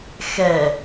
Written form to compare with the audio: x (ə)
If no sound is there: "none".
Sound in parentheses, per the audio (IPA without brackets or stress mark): ɛ